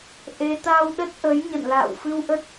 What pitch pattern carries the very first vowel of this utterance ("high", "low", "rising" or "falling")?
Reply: rising